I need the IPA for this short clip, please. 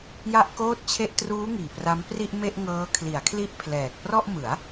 ja˥˩ʔkoː˥˩t̚t͡ɕʰe˥˩ʔ truː˦˥ŋiː˨˩ pra˦˥m pri˥˩ʔme˥˩ʔŋɤː˦˥ kʰli˩˦a̯kʰli˥˩ʔpʰlɛː˨˩k̚ prɔ˥˩ʔmɯ˩˦a̯

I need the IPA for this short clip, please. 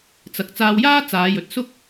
t͡sɐ˨˥k̚t͡saː˧wjaː˥ t͡saː˨˧jɵ˨t̚sʊ˥k̚

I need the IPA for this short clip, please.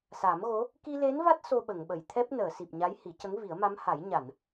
sa˨˩˦mɣo˧˥ | ki˧le˧˥nva˦˥t̚ so˧ɓə˨˩˨ŋɓə˨˩˨j t̪ʰɛ˦˥p̚nəː˨˩˨si˨˩p̚ ɲa˧˥jhi˨˩˦cə˧˥ŋ vi˨˩˦ə̯ma˧˥mha˨˩˦j ɲa˨˩˨n

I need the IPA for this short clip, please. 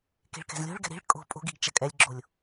ke̤ɭkɛ̤zlʲo̤ɭɡɛ̤ ɾi̤ɭ kʼo̤ pʼo̤ɡiɡ t͡ʃɐkʼɛlʲɡ͡ǁolʲ

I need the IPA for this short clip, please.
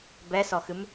bɛsɔxɨm

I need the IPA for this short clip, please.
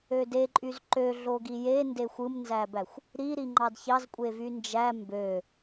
ødeǃʼyz ǃøɮo ɡijende xʷɯmnzæbæxʷ | ɾiɾi ŋ͡ǃɑdçɑzkʷʼe vynd͡ʒæ mbø

